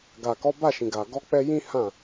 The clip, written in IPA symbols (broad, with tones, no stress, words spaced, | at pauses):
ɡa˨kɔ˨˦ba˦˨ʃĩ˨ ɡa˨ ɡɔ˨˦k͡pɛ˧ jĩ˦hã˦˨